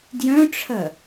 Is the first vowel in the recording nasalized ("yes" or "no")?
yes